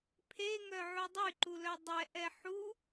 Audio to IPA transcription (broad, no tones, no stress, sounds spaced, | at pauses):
pʰ e ŋ œ ʕ u dˤ y ǃ u l œ dˤ ɛ ʔ ɛ ħ u